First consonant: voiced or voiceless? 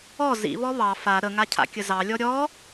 voiced